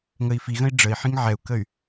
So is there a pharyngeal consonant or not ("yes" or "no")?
yes